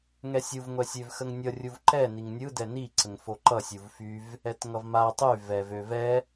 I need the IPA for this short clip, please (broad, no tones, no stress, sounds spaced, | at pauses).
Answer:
ŋ ɛ sʲ u v ŋʷ ɛ sʲ ø v x ə ŋ nʲ ʌ rʲ u v ǃ ɛ n i ŋ nʲ ɯ d ɛ n i ǀ ə ŋ f o ǃ ʌ sʲ u v f y v | ɛ t ŋ ʌ v m a tˤ y v ɛ v ø v ɛ